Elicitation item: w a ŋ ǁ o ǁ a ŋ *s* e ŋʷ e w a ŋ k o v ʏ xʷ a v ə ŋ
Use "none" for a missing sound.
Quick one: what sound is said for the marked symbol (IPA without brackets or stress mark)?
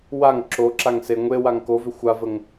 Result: s